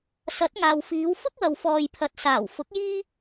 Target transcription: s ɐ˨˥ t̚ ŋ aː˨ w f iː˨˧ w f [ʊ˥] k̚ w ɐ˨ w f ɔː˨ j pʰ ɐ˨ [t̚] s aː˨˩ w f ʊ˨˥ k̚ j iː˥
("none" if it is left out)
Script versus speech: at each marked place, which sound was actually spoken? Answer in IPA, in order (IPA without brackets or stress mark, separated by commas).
ʊ˥, t̚